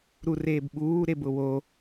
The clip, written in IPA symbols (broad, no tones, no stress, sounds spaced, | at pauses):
ɾ u r eː b ɓ uː ɾ e b ʊ w o